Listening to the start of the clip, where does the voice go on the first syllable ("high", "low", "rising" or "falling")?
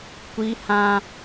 high